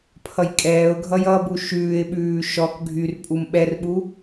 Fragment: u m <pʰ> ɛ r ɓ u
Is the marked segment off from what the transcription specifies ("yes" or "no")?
yes